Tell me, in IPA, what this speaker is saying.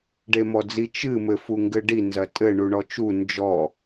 ɖemɔd͡zi t͡ʃɨ mɘ fuŋɡɘɖi nzɐtʼɘ ɳuɳɔt͡ʃu nd͡ʒɔ

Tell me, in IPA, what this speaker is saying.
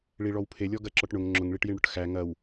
ɭiɭɔwpʰelʲɔ ɡɐǁɔʈɳʊŋ ŋ͡ǁʊŋɭiʈjiɳɽʊʈ xæ ŋɐw

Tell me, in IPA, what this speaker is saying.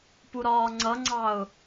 puɾɒːŋ͡ǀʌŋ͡ǀɑʊ̯

